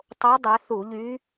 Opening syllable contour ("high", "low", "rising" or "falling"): rising